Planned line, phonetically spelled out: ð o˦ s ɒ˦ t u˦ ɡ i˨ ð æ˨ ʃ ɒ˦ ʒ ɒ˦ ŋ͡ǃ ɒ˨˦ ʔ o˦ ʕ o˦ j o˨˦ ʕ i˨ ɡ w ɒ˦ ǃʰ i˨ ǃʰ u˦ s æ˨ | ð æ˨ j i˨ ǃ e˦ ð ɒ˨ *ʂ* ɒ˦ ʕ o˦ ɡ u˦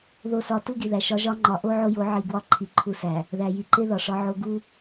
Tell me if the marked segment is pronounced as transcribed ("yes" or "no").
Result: yes